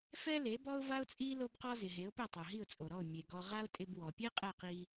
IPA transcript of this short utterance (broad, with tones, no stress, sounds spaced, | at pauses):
f ɛ˥ l e˩˥ b ɔ˥ ʊ̯ v a˥ ʊ̯ t͡sʼ i˥ l o˥ b q ɔ˥ z ɪ˩ ɦ e˩˥ ʊ̯ p ɪ˥˩ tˤ o˩ ɦ i˥˩ ʊ̯ t͡sʼ o˩ ɾ ɔ˥˩ ʊ̯ mʲ e˩ ɡ ɔ˧ ʁ a˥ ʊ̯ tʼ ɪ˧ b w ɔ˩ pʲ e˥ qʼ ɛ˥˩ q i˧